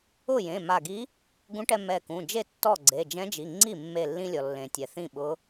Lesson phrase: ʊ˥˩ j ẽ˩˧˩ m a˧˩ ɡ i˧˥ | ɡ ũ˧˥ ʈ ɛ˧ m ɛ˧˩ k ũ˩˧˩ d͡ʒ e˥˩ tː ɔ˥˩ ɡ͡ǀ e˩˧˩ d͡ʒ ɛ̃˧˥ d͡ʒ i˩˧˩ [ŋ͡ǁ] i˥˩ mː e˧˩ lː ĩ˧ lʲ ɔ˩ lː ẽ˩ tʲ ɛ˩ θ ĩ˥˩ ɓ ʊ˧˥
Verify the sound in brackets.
incorrect: ŋ͡ǀ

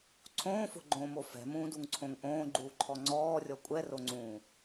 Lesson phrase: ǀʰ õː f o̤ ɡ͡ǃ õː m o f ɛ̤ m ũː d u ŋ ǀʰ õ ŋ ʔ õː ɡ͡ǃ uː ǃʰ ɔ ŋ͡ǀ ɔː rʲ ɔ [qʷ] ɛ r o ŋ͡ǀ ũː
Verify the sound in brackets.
incorrect: kʷʼ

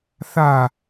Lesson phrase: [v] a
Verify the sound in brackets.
incorrect: θ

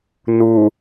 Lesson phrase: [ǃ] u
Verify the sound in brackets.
incorrect: n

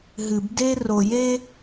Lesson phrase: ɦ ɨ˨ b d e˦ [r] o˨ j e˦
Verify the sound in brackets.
correct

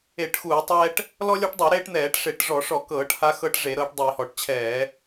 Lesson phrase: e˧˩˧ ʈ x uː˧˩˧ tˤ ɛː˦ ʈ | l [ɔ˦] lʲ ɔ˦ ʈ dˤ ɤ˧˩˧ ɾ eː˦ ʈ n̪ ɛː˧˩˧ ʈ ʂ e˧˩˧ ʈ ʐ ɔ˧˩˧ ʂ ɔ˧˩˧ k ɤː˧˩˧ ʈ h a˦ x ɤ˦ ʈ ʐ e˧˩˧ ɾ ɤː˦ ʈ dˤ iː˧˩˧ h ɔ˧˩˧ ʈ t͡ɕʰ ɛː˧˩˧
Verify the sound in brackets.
correct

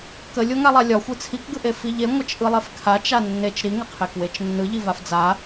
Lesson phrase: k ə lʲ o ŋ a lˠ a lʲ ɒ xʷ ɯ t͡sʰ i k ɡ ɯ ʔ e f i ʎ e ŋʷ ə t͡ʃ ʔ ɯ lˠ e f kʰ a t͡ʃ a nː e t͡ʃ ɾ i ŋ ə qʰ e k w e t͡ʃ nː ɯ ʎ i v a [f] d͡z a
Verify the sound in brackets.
correct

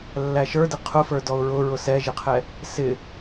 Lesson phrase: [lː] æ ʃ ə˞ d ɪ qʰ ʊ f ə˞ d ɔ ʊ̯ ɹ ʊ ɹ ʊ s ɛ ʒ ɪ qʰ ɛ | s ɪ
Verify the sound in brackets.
correct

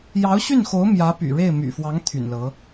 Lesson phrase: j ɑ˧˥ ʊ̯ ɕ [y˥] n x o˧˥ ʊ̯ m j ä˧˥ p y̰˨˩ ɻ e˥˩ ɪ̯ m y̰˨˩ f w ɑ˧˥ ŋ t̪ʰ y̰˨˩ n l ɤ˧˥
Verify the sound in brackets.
incorrect: y˥˩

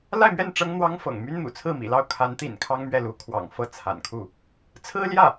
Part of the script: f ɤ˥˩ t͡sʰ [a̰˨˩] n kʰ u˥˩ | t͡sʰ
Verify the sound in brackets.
correct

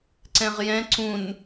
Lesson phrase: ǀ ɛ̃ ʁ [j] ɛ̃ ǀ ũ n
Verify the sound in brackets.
correct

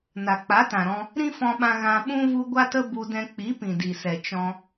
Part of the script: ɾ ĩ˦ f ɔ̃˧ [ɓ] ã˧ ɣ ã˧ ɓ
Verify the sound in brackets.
correct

